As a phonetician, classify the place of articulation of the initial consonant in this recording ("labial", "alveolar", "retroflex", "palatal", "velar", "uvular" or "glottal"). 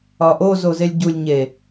glottal